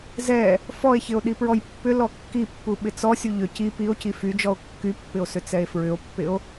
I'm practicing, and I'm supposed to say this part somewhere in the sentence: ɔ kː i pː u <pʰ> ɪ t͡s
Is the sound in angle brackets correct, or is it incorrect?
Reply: incorrect